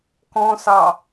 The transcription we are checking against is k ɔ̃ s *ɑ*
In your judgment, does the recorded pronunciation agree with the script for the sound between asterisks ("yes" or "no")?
yes